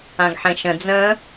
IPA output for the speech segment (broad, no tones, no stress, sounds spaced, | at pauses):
ã ɡ ħ ẽ ʃ ə̃ d͡z ə̃